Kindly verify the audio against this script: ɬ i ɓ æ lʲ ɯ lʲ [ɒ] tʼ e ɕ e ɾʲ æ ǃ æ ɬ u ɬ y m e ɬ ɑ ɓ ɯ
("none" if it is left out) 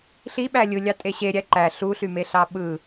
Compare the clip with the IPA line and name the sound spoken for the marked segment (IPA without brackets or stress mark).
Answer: ɑ